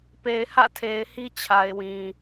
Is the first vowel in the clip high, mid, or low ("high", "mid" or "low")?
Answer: mid